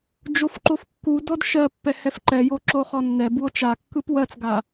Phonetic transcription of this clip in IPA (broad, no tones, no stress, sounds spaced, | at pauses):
d͡ʒ o f ǃ o f kː u d ɔ d ʃ ɜ pː ɛ h ɛ f ǃ ɛ j o ǁ o χ ɔ nː ɛ b u o̯ t͡ʃ a kː ɯ p w ɜ t͡s ɡ a